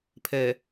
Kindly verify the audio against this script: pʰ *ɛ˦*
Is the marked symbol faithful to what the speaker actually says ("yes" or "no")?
no